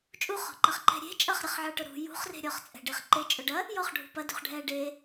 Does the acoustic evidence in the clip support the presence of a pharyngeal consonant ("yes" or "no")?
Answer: yes